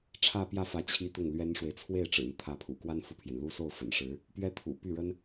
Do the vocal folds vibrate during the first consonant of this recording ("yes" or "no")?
no